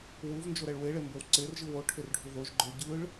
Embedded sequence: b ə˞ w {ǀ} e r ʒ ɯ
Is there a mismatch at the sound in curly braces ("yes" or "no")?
no